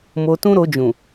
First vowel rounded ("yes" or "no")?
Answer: yes